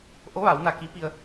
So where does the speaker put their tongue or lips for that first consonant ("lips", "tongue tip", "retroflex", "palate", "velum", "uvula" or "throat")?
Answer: throat